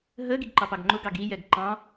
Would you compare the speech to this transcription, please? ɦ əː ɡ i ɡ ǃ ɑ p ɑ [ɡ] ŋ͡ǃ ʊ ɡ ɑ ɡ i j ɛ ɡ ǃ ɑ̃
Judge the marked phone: correct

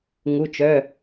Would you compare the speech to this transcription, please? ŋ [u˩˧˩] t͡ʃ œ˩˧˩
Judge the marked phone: correct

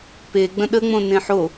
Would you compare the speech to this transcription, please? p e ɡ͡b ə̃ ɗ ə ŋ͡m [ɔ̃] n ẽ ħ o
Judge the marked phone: incorrect: õ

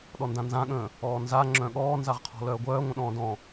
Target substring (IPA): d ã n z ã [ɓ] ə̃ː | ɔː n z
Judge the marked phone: incorrect: ɠ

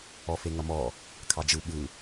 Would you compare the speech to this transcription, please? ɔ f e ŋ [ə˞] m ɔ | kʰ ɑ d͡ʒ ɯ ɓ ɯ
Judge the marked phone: incorrect: ʌ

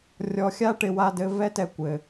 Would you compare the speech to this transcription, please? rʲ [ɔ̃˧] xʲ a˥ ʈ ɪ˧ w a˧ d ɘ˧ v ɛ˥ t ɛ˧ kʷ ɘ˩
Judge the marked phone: incorrect: ɔ˧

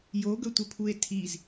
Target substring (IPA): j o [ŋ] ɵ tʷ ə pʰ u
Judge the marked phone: incorrect: ɡ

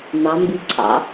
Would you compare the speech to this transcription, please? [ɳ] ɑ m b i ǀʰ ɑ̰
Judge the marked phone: incorrect: n̪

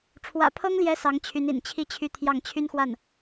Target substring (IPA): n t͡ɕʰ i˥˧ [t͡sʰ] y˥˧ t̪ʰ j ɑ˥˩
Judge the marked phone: incorrect: t͡ɕʰ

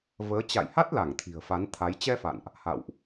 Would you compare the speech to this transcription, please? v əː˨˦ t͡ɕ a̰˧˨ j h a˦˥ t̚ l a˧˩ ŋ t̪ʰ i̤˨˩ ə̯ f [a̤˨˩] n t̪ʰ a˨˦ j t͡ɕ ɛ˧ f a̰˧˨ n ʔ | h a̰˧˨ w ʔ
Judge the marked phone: incorrect: a˨˦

